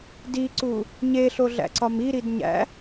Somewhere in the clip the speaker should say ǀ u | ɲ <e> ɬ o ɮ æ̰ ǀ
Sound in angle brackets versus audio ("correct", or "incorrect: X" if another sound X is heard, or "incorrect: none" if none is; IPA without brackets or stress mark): correct